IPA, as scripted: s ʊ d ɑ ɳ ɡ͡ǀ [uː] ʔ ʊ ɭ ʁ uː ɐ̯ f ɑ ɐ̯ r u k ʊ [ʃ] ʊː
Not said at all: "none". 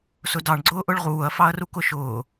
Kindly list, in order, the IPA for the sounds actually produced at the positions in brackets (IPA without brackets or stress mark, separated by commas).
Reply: ʊː, ʃ